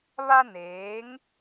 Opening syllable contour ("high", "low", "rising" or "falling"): high